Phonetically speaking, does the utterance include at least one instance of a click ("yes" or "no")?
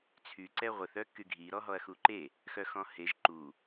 yes